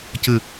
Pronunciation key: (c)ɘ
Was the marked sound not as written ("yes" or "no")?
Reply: no